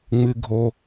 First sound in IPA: ŋ͡m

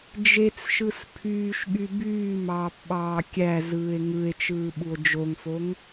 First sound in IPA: d͡ʒ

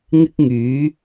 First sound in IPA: ŋ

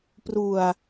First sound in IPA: p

